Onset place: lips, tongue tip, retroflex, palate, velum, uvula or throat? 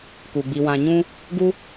velum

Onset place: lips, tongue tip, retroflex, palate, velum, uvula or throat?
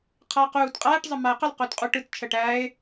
uvula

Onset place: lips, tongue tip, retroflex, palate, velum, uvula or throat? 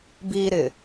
lips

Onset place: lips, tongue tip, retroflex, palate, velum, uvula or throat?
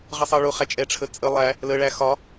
uvula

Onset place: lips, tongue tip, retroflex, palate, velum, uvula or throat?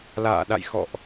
tongue tip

